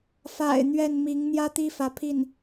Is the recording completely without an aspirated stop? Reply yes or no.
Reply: no